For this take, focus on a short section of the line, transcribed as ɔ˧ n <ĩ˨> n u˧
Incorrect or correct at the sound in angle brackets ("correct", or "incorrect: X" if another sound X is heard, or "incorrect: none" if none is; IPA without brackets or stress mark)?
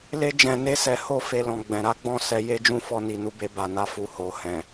incorrect: i˨